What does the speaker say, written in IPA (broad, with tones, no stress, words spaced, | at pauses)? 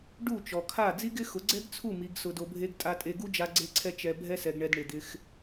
ɖu˦˨t͡ʃɔ˨kʰa˦˨ d͡zi˦ɡɪ˦xʊ˨˦ ɡ͡ǀɛ˦ɡt͡sʰu˦˨ mi˧ɡsʊ˧do˧bʱe˦ɡ tʼa˧tʼe˧ɡu˦d͡ʒa˧ ɡ͡ǀe˦ǀʰɛ˦ t͡ʃɛ˧ bʱɛ˧sɛ˨ɡɳɛ˨d ɳɪ˨d̪ɪ˧x